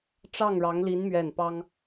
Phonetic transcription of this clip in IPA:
ʈ͡ʂɑ˥˩ŋɻɑ˧˥ŋli˧˥n mɥɛ˥˩npɑ˥ŋ

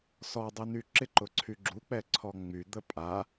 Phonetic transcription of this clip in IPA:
sɔ dˤɛnyǁɪ ǃʊǀʰyɡ͡ǁu k͡pɛǀʰɔŋ͡my d̪əpʼa

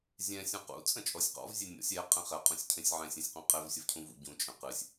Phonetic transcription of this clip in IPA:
zʲɛ̃ sʲɔ̃qṵ t͡sʼə̃t͡ʃʼɔsʲqɔ̰v zʲenʲɔ̰sʲ ɛ qʼɛ̃χɛ qʼũsʲcʰẽsʲʕɛ̃ sʲɛ̃sʲqũqʼev sʲəvcʰũvṵ ɟũ t͡ʃʼə̃ qɨsʲ

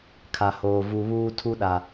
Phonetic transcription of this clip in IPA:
kʰa˨hoː˨ vu˨ βuː˦tʰu˦ ɗa˨

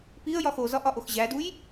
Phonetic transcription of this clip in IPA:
piə̯jɒx ozɒʔɒʔox ʑæduj

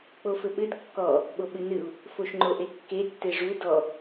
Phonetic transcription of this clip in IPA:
k͡pofɘɓɘd kːɔ | ɓoɓɨnɨu̯ | foʃŋ͡ǃoʔekːe tːeʐu dɔ

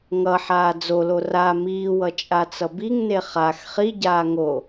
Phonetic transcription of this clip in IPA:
ŋʌħaː d͡zolo ra miːwʌ t͡ʃʼat͡sʌbiŋne χax χiɟaː ŋo

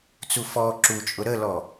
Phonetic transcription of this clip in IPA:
t͡sufɔː ǁut͡ʃʼʊ ɾəlɔː

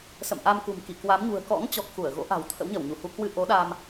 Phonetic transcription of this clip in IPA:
sə̰˧˨mʔa˧mkṳ˨˩mki˧˩ kwa˨˦mɲṳ˨˩ə̯ kɔ̰˧˥ŋt͡ɕɔ˨˩k̚ xu˧˩ə̯ɣo̰˧˥ʔa̤˨˩w t̪ʰə̰˧˥wɲə˧˩wɲu˧˩hu˧ kwɨ˧ʔo˨˦ɗa˧m

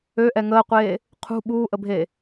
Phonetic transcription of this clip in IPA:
øʔɛ ŋəːqʷeː | qʰṳ ɓuːʔəbʱe

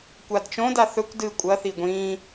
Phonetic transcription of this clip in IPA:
kʷadt͡ʃõda θɵkʷ dɨ kʷʼɐθi ɡʷĩː

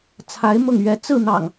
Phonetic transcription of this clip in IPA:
t͡sʰa˨˦ɪ̯ mʊ˥˨ŋ ɥɛ˦ t͡sɹ̩˥˨ n̪ɑ̰˨˩ŋ

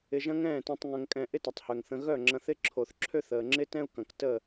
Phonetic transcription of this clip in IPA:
ɪ˧ ʒɐ̃˦ŋɛ̃ː˦˨tõ˧tˤ ŋɐ̃˧ŋkʼɛ̃˧ ʔɪ˦tɐ˨tˤhø˨ŋθə̃˧ ɣœ˦˨ŋ͡ǁɐ̃˧θ ɪ˦ǁʰo˨θǁʰø˦θ əː˨ŋ͡ǁɪ˦tɛ̃˦u̯kɐ̃˨k tə˦˨

